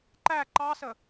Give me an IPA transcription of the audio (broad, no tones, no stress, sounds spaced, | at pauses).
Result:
ǃ æ ǃ ɑ s ə